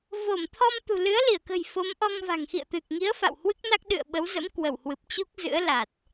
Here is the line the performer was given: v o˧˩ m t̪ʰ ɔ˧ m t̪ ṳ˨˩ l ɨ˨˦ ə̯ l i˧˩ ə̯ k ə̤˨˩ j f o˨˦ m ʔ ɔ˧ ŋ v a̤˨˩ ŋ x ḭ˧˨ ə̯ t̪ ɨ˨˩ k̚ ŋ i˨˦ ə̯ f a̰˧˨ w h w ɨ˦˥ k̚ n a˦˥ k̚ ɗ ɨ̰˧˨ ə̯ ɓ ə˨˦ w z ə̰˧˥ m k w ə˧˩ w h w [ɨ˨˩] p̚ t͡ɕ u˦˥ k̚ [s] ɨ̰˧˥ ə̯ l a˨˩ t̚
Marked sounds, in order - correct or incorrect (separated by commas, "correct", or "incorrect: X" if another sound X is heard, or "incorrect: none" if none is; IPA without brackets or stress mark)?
correct, incorrect: z